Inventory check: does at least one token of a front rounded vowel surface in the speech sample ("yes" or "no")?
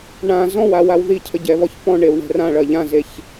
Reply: no